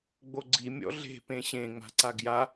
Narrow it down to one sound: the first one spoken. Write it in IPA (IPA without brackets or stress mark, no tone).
ɡ͡b